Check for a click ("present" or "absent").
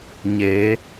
absent